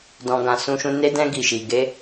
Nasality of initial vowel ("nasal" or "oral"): nasal